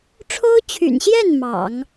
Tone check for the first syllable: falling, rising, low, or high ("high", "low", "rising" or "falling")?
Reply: high